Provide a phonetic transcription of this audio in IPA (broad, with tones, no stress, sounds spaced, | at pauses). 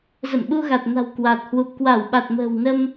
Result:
z ə̰˧˨ m ɓ u˧ ɣ a˨˩ t̚ n a̤˨˩ w k w a˨˩ t̚ h w u˨˩ p̚ k w a˧˩ w ɓ a˨˩ t̚ m ə̤ː˨˩ w n ə˧ m